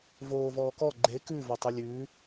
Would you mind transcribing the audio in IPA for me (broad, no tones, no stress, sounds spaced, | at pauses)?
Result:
v oː v ɔː k ɔ ɡ͡ǃ e k ʉ v o tˤ ʉ lʲ ʉː